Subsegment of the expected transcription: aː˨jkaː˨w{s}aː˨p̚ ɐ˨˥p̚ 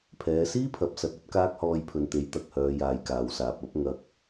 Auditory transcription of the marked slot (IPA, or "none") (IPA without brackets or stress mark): s